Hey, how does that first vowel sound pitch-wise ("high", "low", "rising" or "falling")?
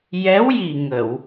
rising